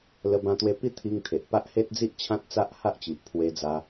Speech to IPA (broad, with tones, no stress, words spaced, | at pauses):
lə˧bã˧t̪we˧ pi˥˧t̪ʰi˧ŋt̪ʰe˨ʔ pa˦ʔhe˦t̚d͡zi˦ʔ t͡ɕʰã˦t̚ t͡sa˦ʔha˦ʔt͡ɕi˨ʔpʰwe˧ d͡za˧